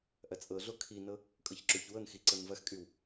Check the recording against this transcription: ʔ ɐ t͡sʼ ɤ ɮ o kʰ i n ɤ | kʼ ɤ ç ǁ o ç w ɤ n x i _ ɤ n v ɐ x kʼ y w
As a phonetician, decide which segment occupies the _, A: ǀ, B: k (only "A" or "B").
A